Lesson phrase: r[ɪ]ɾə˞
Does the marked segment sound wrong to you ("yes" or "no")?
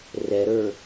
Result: yes